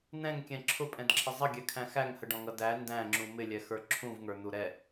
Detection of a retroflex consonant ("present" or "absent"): present